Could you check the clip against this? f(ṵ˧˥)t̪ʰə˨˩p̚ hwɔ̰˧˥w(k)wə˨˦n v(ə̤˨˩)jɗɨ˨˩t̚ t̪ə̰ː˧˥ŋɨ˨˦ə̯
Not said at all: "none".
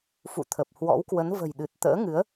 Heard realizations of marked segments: ṵ˧˨, k, ə̤˨˩

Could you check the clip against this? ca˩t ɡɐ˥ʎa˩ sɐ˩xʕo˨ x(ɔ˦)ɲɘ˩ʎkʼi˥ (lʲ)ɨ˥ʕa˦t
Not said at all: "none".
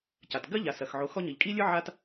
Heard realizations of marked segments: ɔ˦, lʲ

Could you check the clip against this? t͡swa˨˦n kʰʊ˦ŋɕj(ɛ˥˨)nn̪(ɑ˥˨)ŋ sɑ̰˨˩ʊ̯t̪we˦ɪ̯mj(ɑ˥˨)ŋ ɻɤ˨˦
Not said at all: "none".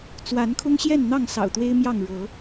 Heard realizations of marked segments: ɛ˥˨, ɑ˥˨, ɑ˥˨

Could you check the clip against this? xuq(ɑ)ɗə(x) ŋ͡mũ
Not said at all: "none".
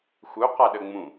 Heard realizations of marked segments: a, none

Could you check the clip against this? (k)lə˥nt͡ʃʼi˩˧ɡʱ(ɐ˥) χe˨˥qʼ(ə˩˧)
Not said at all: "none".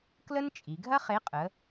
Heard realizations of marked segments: k, ɐ˥, ə˩˧

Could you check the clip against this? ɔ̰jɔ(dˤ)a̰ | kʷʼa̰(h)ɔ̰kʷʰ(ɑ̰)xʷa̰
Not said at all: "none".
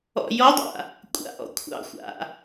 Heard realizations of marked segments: dˤ, ʔ, ɑ̰

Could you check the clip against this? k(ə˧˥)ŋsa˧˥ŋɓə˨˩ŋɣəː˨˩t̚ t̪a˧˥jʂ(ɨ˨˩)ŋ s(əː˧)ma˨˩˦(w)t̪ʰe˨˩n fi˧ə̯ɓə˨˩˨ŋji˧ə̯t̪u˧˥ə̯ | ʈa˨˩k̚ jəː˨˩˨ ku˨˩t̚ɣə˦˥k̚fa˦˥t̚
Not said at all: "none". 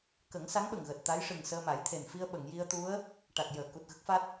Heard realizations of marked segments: ə˨˩˦, ɨ˨˩, əː˧, j

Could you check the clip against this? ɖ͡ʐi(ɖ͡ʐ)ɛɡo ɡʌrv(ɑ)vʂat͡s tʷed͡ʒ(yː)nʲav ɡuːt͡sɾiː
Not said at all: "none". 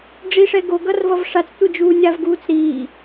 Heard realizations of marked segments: ʂ, ʌ, uː

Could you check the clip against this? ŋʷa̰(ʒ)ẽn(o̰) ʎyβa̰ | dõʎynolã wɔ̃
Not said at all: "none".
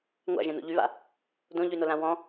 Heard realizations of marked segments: ʒ, o̰

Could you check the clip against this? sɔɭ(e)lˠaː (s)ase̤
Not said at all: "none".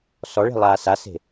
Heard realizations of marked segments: e̤, s

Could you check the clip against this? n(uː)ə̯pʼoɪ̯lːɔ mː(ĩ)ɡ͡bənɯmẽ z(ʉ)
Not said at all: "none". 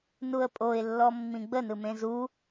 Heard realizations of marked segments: u, ĩ, u

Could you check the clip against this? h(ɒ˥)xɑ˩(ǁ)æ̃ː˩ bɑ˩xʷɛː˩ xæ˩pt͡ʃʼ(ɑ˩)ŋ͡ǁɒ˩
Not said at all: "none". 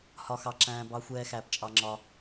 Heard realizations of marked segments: ɒ˩, ǁ, ɑ˩

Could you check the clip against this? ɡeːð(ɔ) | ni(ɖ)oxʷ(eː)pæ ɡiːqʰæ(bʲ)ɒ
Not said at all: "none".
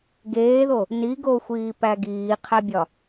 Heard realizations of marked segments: o, ɡ, iː, bʲ

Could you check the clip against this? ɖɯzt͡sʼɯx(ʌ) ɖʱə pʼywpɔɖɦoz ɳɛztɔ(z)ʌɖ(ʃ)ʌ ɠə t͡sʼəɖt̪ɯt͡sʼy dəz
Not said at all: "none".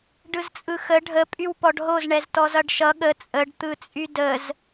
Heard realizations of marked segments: ə, z, ʃ

